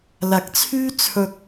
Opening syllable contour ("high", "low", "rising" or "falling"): rising